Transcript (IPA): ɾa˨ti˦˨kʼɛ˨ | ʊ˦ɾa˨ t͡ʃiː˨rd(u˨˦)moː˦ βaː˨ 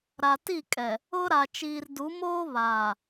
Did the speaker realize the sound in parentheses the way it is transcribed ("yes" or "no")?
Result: yes